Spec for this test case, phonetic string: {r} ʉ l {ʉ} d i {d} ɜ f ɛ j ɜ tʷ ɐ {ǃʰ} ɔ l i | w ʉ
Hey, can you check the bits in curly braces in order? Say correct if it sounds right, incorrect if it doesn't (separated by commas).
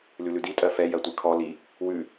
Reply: incorrect, correct, incorrect, incorrect